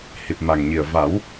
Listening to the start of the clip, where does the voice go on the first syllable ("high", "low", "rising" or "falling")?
low